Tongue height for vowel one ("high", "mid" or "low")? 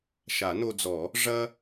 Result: low